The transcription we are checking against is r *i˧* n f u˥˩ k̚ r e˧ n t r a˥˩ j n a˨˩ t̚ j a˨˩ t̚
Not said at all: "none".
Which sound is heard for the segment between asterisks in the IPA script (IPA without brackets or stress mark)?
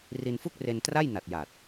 i˧